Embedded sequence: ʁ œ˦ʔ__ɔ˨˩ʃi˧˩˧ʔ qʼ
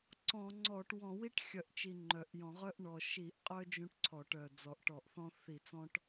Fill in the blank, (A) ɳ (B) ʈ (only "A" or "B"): A